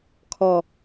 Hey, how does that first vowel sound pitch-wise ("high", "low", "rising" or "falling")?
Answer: low